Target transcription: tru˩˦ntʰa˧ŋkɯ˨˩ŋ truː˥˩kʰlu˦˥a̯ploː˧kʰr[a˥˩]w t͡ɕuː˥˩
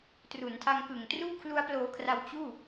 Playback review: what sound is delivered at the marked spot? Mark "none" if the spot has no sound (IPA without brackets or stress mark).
a˧